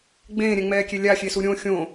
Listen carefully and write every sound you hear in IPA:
ɡ͡b ẽː ɾʲ ɛ̃ ŋ͡m ɛː kʲ e lʲ a xʲ e s u ɾʲ õ xʲ õ

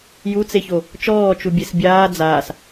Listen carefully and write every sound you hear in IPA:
j u t͡s e ç o | t͡ʃ ɔː t͡ʃ u bʲ e s bʲ aː d͡z aː s

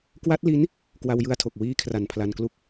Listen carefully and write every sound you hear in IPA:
k w a˦˥ t̚ l i˦˥ n | k w a˧ w j ɯ˧ a̯ tʰ o˨˩ k̚ w iː˦˥ kʰ r a˨˩ n pʰ l a˧ n k l u˥˩ k̚

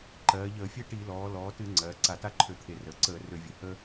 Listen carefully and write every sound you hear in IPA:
ǃ ɜː˩˧ ʎ əː˧˩˧ fʲ e˥ ʈ i˧˩˧ l ɔː˩˧ l ɔː˩˧ t ɨ˧˩˧ ŋ͡ǀ ɜː˩˧ ǀ a˧˩˧ t a˥ ǃʰ ø˧˩˧ t̪ʰ e˧˩˧ r əː˩˧ ǀ əː˧˩˧ r ø˧˩˧ vʲ ø˩˧ h ə˥

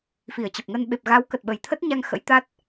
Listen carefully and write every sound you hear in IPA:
f i˧˩ ə̯ t͡ɕ ə˨˩ p̚ ŋ ə˧ n ɓ e˨˩ p̚ ɣ a˨˦ w k ə˨˩ t̚ ɓ ə˨˩ j t̪ʰ ə˦˥ t̚ ɲ a˧ ŋ x ə̰˧˥ j t̪ a˦˥ t̚

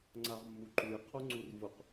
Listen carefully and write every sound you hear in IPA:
ŋ͡ǀ a ʁ mː u ǃ u j qʰ o ŋ͡ǀ u r v ʊ q

